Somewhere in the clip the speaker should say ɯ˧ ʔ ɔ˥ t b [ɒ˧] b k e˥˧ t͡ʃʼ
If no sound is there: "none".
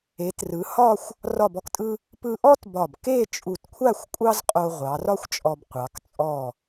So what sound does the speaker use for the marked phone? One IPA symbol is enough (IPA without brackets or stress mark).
ɒ˧˩